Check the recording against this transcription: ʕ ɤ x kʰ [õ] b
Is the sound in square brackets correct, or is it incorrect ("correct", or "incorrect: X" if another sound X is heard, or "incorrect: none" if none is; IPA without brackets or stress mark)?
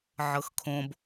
correct